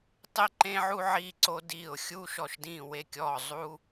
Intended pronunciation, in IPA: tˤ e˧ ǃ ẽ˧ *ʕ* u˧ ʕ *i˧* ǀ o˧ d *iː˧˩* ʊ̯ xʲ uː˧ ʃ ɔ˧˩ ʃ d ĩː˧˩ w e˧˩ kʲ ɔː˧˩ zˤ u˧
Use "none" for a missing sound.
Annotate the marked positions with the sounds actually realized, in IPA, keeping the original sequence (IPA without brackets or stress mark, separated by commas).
ʕ, i˧, iː˧˩